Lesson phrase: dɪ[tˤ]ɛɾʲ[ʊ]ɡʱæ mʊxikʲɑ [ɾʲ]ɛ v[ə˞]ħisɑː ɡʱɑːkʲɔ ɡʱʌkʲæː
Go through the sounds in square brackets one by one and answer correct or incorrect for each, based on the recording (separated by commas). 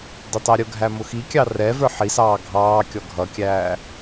correct, correct, incorrect, correct